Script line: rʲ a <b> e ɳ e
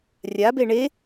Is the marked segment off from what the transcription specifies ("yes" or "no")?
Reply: no